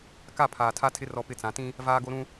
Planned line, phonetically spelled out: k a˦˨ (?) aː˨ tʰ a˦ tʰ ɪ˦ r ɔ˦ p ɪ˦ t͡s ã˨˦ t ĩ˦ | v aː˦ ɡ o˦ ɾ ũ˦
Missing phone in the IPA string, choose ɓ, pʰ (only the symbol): pʰ